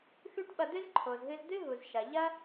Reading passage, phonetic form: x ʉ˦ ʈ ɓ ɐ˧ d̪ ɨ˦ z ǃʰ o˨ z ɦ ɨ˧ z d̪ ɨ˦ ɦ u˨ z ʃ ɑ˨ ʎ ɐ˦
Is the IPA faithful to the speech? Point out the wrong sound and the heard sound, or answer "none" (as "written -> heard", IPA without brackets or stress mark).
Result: ɑ˨ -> ɐ˨